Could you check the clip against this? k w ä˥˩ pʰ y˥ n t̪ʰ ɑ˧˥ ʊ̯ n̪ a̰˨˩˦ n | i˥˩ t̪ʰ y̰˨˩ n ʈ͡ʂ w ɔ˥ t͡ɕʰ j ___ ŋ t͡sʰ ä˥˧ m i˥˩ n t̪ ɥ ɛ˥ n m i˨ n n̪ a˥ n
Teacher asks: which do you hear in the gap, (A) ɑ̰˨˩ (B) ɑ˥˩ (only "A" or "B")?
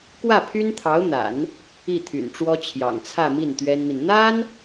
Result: A